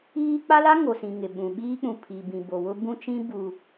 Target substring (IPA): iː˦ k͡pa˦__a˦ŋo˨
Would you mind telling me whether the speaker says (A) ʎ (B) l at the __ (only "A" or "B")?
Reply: B